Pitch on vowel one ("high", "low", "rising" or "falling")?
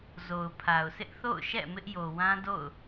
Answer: low